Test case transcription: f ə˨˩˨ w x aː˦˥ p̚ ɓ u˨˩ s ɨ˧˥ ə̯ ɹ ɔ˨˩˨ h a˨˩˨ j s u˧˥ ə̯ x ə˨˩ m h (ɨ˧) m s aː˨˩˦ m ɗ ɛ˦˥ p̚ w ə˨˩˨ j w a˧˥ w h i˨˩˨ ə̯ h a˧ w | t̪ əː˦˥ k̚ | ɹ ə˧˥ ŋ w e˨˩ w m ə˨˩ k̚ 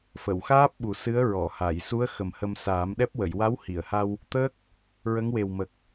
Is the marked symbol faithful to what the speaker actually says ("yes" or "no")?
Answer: no